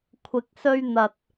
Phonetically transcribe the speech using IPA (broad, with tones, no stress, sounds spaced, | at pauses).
kʷʰ ɪ˨ k̚ s ɵ˧ ɥ n̪ ɐ˨ t̚